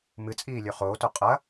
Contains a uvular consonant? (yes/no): yes